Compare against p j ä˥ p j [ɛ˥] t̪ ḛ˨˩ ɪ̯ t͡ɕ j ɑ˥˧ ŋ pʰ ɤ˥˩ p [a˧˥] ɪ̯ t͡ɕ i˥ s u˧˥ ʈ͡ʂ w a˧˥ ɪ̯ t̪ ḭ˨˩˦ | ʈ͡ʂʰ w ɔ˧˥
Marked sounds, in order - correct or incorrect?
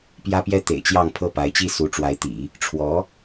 correct, correct

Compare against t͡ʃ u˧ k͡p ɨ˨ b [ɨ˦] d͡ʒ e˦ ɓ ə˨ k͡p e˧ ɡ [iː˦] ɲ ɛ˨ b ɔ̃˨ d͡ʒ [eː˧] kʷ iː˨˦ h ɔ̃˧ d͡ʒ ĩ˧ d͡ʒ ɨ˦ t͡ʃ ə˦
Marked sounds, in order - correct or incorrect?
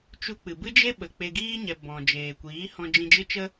correct, correct, incorrect

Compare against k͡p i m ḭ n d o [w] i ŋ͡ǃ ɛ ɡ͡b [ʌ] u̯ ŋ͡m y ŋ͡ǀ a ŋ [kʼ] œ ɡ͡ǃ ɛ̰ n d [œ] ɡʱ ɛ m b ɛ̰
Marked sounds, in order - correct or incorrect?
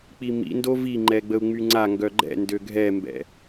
incorrect, incorrect, incorrect, incorrect

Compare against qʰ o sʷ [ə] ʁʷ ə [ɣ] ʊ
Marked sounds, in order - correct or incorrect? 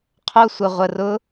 correct, incorrect

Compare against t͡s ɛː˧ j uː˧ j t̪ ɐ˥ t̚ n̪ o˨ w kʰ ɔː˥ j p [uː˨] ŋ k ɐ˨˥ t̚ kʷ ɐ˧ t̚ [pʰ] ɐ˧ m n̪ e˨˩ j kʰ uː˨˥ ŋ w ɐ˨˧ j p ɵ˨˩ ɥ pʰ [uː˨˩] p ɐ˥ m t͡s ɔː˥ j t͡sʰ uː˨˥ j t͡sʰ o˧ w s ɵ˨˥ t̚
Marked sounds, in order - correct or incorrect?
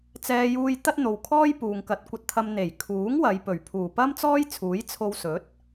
correct, incorrect, correct

